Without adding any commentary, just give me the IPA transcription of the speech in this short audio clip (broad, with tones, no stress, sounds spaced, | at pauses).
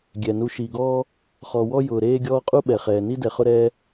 ɡʲ ɛ˩ n u˨ ʃ i˩ ɡ ɔː˦ | χ ɔ˨ w ɔ˥ j ʊː˩ ɾ eː˦ ɡʲ ɔː˦ qʼ u˥ ɓ ɛ˩ χ ɛː˩ n i˥ d ɛ˩ χ ʊ˦ ɾ ɛː˥